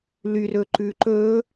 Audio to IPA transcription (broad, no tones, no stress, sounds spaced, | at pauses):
l y r ɵ ǃ ʉ ǃ ɵ